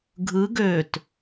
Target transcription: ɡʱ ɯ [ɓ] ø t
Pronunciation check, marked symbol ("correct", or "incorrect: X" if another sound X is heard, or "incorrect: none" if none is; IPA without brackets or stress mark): incorrect: ɡ